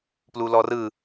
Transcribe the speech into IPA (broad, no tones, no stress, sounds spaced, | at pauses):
p l u l ɔ r ɯ